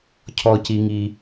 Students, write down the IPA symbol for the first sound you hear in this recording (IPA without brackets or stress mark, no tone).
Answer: cʰ